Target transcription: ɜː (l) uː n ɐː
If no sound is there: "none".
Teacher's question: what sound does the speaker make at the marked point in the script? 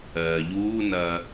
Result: ʎ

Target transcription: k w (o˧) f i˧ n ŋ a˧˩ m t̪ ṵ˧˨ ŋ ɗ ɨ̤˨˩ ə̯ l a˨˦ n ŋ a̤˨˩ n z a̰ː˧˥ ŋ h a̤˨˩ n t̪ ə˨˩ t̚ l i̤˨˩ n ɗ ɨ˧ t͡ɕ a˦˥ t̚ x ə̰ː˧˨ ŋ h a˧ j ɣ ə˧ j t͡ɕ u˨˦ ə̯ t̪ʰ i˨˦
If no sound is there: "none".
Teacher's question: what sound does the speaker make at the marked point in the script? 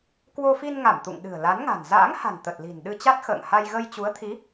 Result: o˧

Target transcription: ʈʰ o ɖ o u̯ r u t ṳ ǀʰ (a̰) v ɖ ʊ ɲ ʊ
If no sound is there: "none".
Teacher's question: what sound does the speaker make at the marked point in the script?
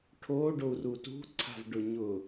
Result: a̤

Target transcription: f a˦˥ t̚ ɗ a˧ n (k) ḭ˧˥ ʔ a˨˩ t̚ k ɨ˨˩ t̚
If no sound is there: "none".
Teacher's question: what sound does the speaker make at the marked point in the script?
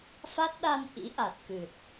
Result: ʔ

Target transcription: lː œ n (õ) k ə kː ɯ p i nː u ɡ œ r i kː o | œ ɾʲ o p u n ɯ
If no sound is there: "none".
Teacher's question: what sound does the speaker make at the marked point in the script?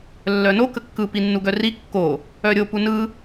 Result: o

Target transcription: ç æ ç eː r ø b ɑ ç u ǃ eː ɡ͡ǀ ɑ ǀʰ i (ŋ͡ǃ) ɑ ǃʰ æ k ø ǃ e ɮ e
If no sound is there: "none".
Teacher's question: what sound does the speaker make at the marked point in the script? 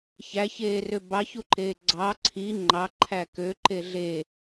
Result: ŋ͡ǃ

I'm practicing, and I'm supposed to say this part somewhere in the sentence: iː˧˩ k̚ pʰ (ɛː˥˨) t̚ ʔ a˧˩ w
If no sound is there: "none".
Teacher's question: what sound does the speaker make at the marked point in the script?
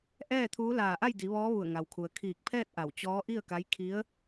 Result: ɛː˥˨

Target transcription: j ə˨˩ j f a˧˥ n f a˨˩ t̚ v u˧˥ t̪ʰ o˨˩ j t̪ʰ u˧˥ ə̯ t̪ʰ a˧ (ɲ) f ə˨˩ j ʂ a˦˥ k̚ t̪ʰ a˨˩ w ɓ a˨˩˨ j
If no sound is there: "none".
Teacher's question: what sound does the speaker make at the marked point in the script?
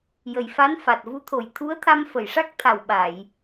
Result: m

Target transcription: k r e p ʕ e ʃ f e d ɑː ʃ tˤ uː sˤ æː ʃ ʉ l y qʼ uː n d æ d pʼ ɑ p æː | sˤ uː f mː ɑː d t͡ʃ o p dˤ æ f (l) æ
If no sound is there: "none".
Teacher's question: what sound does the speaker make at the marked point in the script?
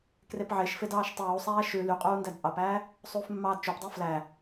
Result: l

